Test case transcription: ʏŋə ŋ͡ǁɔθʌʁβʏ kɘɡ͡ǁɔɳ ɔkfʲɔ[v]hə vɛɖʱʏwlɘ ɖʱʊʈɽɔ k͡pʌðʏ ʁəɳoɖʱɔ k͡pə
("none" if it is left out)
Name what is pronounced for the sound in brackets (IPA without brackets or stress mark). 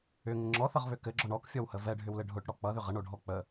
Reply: w